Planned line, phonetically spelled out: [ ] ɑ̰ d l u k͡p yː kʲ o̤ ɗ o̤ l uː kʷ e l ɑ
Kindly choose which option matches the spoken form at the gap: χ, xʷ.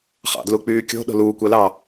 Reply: χ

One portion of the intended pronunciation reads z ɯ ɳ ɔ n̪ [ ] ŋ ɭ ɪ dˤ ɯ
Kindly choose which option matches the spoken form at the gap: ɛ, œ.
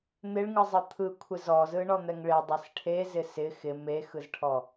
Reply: ɛ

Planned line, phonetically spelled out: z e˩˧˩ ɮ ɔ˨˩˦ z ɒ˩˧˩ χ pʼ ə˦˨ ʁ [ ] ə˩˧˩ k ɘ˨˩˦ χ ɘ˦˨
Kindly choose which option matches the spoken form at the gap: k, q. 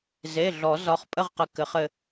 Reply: q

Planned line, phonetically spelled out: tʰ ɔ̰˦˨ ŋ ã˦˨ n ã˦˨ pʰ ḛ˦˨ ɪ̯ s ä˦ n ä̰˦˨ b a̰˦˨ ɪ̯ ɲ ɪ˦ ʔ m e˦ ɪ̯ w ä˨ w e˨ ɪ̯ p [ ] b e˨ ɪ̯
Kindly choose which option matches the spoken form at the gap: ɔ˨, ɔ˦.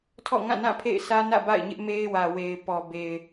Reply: ɔ˨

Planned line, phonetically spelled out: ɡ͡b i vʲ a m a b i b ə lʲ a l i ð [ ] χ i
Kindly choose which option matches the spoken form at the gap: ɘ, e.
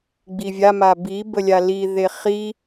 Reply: e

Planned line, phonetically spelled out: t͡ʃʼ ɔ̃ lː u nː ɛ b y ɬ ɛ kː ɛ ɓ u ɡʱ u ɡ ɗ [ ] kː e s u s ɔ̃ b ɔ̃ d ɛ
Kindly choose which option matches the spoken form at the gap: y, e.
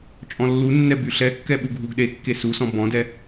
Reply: e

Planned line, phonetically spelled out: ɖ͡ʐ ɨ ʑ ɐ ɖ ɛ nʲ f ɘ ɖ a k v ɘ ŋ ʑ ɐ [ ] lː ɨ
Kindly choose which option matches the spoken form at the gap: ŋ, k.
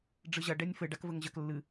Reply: k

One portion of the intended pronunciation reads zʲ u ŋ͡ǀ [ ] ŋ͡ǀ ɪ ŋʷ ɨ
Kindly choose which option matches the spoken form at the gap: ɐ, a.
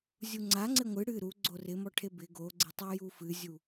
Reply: a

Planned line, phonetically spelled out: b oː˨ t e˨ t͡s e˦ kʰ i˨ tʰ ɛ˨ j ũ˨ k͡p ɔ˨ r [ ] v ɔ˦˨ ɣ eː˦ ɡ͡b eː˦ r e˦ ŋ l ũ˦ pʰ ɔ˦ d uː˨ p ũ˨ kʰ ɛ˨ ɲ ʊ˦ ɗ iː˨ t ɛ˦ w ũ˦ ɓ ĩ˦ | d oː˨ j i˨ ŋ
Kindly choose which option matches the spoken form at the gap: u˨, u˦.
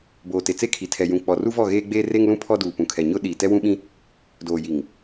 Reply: u˦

